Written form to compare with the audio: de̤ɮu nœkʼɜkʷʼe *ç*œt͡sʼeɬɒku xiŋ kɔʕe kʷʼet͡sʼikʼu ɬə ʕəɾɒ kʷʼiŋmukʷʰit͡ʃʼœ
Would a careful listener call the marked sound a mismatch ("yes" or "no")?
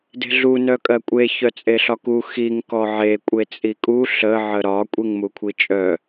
no